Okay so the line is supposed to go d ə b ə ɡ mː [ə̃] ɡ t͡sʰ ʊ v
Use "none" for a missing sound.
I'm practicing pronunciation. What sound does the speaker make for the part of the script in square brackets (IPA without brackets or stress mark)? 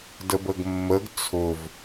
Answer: ə